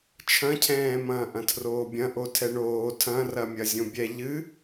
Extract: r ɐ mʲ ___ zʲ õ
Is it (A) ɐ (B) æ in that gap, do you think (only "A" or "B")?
A